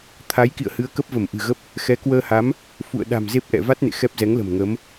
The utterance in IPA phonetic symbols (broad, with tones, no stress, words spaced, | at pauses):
t̪ʰa˨˦j kḭ˧˨ə̯hɨ˨˦ə̯kə˦˥p̚və˧˩m ʔɨ̤˨˩ɣə˦˥p̚ | xɛ˨˦kwəː˧ha˨˦m | fṵ˧˨ə̯ɗa̤˨˩m ze˦˥p̚ʔɛ̰˧˨ va˦˥t̚nḛ˧˨ xɛ˦˥p̚zɛ˨˦ŋlə̤˨˩m ŋə˨˦m